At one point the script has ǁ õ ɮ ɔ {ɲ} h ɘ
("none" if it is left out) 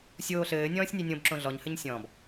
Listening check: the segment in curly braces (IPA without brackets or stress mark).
ɲ